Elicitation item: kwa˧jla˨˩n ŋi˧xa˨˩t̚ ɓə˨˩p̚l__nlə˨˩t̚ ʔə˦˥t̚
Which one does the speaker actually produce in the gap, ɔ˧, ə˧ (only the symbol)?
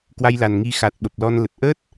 ɔ˧